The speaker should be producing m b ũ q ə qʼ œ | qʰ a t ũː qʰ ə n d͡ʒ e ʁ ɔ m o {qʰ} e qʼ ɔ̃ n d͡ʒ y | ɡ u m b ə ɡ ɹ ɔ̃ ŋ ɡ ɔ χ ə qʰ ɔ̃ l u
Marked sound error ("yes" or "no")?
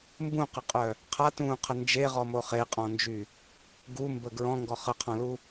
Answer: yes